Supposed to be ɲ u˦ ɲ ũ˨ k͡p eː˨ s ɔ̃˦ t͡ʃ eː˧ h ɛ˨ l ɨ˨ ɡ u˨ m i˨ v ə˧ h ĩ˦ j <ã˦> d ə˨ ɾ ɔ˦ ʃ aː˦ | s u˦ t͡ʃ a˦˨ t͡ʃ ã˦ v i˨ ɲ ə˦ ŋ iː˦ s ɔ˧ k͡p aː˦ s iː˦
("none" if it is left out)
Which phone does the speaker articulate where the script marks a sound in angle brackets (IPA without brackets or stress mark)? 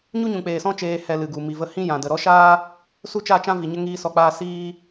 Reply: ã˨